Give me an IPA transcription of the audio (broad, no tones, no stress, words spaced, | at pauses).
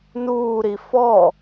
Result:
nuːɾi fɔ